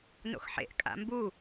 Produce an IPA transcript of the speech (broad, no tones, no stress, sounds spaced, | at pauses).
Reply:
n o̰ x ħ ḛ ʔ kʼ a̰ m b u